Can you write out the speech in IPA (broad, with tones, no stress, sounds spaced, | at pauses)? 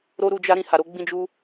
ɾ o˦ ɾ u˧ d͡ʒ a˦ ɾ ĩ˦˨ h a˨ ɾ o˧ ɡ͡b ĩ˦ d͡ʒ u˦